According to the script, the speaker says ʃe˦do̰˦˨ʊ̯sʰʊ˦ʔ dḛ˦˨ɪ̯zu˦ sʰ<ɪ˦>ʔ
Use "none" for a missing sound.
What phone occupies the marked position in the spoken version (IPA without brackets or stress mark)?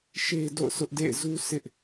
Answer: ɪ˦